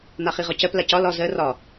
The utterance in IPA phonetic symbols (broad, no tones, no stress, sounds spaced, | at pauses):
n̪ a χ i ʁ ɒ c ɜ p l a c ɒ l ɒ z ɜ r ɒ